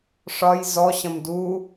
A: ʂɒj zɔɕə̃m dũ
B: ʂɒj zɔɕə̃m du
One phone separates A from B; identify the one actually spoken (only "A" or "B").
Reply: B